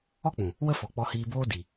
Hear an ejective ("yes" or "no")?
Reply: no